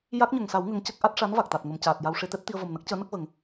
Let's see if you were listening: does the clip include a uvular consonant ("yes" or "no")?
no